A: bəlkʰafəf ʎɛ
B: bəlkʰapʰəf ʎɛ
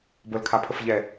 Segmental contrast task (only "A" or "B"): B